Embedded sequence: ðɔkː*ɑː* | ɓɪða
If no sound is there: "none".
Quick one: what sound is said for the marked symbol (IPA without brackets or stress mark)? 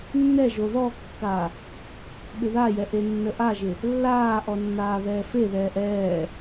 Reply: aː